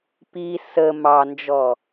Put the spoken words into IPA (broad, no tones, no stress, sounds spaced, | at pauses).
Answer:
p i s ə m ɑ n d͡ʒ ɔ